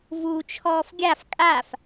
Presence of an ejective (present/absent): present